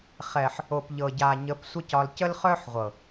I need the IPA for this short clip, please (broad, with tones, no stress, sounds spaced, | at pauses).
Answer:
χ ɛ˨ ħ | o˨ p ʎ ɤ˨ ɟ a˨ ɲ ə˨˦ p sʷ ə˦ c ɒ˧ l c ə˦ l χ œ˦ ħ ʁʷ ɤ˨